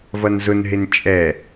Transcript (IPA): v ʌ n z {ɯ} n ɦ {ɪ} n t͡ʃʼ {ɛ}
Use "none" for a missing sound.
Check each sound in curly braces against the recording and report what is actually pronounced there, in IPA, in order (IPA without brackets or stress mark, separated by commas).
ʊ, ɪ, ɛ